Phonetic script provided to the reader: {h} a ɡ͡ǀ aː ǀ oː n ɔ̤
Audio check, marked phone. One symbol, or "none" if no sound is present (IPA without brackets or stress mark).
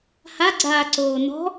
h